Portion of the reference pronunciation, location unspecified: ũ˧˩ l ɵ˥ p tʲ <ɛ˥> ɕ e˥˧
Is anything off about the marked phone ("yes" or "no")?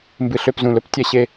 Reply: no